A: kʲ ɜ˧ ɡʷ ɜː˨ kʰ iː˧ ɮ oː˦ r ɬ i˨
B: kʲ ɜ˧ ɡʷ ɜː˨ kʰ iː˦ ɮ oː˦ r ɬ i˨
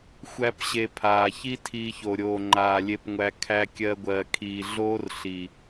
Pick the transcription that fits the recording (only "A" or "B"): A